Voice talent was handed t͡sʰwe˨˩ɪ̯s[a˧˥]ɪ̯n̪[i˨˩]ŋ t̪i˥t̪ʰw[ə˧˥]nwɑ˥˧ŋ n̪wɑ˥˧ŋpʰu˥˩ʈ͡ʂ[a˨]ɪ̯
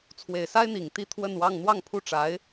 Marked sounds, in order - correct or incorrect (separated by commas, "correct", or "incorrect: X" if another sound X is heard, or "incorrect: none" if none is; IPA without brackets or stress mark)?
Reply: incorrect: a˥, correct, incorrect: ə˥˧, incorrect: a˧˥